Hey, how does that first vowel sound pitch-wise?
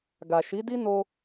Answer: low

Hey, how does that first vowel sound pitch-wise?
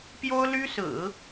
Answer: high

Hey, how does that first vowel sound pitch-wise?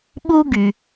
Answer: high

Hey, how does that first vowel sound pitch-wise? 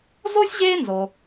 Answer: high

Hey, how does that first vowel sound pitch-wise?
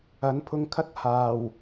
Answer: rising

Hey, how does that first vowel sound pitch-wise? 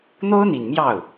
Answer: high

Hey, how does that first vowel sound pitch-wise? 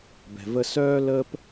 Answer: low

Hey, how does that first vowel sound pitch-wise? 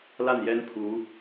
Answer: falling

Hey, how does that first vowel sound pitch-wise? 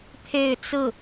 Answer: falling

